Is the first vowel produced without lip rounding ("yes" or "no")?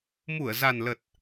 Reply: no